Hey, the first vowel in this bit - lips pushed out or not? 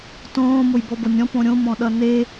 yes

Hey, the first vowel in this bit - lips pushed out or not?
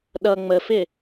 no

